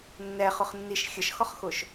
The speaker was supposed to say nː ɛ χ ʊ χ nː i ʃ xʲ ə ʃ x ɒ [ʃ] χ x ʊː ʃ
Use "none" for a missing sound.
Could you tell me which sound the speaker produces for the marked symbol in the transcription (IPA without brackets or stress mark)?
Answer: none